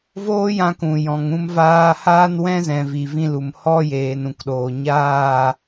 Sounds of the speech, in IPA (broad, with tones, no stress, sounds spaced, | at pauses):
v oː˦ j ã˧ k ũ˨ j ɔ̃˨ ŋ ũ˦ m v aː˦ h aː˦ n w ɛ̃˦ z ɛ̃˨ v i˨ v ĩ˧ l u˨ m h ɔ˦ j eː˨ n ũ˨ k ɗ oː˨ ɲ aː˦˨